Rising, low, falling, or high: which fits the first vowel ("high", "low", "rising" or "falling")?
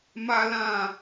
high